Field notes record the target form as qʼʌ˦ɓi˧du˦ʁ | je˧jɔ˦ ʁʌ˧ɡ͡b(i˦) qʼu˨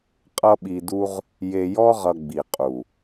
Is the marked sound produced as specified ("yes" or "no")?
no